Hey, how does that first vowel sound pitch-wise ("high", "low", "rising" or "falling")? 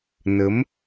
rising